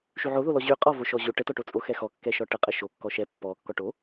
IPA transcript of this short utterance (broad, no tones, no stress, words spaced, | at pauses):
ʃyʕoðolɔ ʑy qʼɔvo ʃɔʑo ʈətɔʈo t͡sʼoxɛxɔ kːɛʃɔʈə qʼəʃo kːɔʃɛ pːɔ kːɔʈo